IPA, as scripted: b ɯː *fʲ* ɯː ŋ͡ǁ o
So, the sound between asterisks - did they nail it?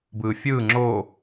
yes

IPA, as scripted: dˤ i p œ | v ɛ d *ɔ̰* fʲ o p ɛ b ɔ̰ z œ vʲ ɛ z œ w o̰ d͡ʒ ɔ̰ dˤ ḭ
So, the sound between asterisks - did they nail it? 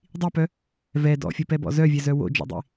yes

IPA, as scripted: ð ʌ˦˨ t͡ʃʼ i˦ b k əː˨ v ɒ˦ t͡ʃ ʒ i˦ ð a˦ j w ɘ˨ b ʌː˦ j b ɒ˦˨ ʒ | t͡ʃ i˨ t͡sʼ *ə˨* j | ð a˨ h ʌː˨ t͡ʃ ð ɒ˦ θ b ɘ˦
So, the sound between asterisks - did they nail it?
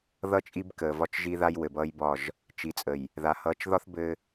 yes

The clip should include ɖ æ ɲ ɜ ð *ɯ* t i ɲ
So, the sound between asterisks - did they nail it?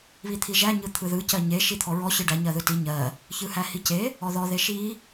yes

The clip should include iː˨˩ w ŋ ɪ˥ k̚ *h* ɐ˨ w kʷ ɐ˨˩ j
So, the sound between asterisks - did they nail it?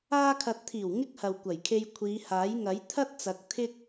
yes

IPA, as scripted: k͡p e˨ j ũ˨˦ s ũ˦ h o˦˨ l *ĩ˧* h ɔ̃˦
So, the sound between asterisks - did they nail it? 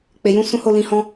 yes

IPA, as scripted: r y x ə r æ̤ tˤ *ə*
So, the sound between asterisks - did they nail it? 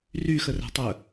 yes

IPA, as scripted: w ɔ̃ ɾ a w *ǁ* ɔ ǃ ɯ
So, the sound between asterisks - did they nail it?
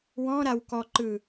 no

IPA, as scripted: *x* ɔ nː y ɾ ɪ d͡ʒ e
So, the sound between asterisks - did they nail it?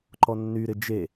no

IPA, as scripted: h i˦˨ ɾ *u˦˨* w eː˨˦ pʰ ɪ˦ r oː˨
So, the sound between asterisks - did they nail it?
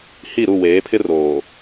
yes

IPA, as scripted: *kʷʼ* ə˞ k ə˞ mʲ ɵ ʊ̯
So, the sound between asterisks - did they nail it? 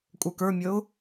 yes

